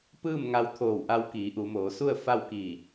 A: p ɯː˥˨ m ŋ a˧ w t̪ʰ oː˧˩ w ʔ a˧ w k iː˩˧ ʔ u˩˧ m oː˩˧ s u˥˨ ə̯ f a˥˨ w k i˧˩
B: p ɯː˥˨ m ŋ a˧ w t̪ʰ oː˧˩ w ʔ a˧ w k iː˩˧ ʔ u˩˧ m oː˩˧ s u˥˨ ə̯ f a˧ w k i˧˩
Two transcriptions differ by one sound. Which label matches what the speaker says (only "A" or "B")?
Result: A